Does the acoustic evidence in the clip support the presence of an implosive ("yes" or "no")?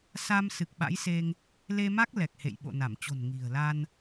yes